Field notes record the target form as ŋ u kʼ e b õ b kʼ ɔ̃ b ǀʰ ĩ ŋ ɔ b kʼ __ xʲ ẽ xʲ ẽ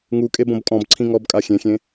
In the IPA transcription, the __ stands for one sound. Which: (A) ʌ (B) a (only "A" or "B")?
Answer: B